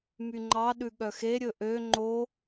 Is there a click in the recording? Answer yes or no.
yes